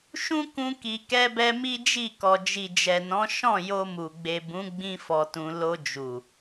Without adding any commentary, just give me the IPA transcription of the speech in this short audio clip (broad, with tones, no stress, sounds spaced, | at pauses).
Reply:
ʃ ũ˦ k ũ˧ k i˨ k ɛ˧ b ɛ˧ m i˦ d͡ʒ i˦˨ k ɔ˨ d͡ʒ i˨ d͡ʒ ɛ˨ n ɔ̃˨˦ ʃ ɔ̃˦˨ j o˧ m u˨ ɡ͡b e˨ b ũ˨˦ ɡ͡b ĩ˦ f ɔ˧ t ũ˧ l o˧ d͡ʒ u˨